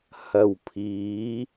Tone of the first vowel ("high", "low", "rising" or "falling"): low